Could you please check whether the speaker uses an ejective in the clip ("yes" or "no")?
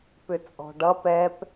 yes